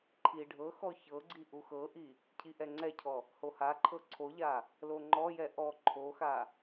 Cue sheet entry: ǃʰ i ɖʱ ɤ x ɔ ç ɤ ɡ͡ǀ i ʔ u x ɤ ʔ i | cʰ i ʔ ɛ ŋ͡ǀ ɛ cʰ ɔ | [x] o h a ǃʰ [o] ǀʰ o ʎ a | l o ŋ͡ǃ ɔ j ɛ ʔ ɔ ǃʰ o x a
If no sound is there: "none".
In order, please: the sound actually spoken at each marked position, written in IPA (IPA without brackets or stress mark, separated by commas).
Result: h, ɤ